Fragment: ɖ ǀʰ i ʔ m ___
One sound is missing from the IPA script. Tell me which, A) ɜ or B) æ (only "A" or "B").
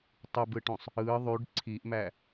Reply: B